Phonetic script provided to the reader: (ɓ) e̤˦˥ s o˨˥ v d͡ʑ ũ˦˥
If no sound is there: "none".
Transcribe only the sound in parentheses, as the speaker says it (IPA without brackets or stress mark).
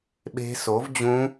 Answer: ɓ